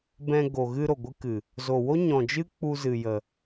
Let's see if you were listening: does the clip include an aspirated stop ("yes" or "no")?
no